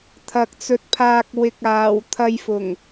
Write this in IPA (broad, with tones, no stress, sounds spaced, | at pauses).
t̪ʰ ɐ˨ k̚ t͡s ɵ˨˥ t̚ pʰ aː˨ k̚ w ɪ˨ k̚ aː˨˩ w t̪ʰ ɐ˧ j f ʊ˨˩ ŋ